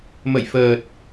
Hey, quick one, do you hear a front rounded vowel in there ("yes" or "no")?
no